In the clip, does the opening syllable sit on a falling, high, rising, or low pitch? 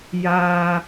high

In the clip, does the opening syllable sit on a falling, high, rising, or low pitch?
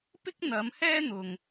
high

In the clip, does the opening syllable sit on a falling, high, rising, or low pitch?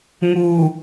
low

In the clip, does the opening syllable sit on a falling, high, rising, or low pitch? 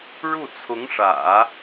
falling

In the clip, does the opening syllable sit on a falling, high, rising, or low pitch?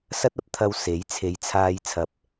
high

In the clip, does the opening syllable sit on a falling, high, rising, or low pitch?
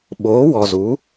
rising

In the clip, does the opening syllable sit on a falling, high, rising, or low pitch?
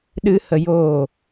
high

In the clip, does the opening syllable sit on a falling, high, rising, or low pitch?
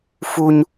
high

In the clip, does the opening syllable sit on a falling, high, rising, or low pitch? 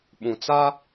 low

